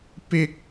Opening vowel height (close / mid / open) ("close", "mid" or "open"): close